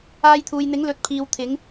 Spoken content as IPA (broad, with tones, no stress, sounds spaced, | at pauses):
aː˧ j t̪ʰ uː˨ j n̪ ɪ˨˥ ŋ l ɵ˨ t̚ pʰ iː˨ w t̪ʰ ɪ˨˧ ŋ